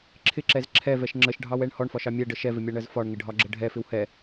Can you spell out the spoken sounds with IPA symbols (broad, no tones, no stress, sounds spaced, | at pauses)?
ǁʰ ɪ ǁ ɛ z ǁʰ ɛ v ɛ ʃ ŋ͡ǁ ə ʃ ɖʱ ɑ w ɛ ɳ h ɔ ɳ f ɒ ʃ ɑ mʲ ɛ ɖ ə ʃ ɛ v ɪ mʲ ɑ ɳ ɜ z f ɒ ɳ ŋ ɪ ɖʱ ɒ ɡ͡ǁ ə ɖʱ ɛ f ɪ w h ɛ